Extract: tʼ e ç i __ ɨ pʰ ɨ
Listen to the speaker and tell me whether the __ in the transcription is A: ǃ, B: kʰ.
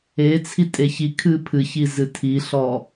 B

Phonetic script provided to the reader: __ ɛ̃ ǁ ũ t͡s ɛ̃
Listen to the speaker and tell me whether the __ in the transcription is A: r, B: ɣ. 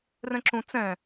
A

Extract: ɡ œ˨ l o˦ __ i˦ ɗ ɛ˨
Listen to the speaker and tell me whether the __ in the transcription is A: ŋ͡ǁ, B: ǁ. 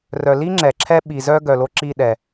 B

